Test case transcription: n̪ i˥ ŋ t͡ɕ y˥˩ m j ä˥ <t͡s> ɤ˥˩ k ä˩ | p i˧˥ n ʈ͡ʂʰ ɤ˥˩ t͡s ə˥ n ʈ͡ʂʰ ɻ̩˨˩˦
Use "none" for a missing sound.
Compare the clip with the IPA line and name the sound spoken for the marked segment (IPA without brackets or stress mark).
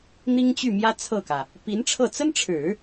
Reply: t͡sʰ